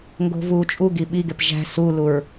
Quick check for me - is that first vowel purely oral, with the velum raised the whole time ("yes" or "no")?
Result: yes